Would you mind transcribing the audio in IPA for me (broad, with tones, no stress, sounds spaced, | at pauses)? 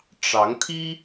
ʈ͡ʂ ɑ˧˥ ŋ t̪ʰ i˥